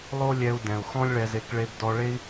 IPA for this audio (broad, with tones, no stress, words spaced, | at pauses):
lˠo˥lʲɛ˧u̯dɛ̃˩u̯ xɔ̃˥lʲɭɛ˧ze˧k ɭe˧bdɔ˧ ɭe˥i̯